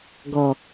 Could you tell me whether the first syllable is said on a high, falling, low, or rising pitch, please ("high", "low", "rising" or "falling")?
low